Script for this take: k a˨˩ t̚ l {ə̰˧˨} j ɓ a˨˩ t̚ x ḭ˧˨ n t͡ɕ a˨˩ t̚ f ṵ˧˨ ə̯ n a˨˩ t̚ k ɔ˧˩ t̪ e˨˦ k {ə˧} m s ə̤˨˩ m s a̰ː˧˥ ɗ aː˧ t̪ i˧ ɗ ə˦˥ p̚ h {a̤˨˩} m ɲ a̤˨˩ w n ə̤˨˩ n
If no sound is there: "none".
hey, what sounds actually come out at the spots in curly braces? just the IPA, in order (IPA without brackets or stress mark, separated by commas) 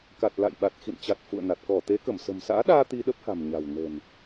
a̰˧˨, ə˧˩, a̤˨˩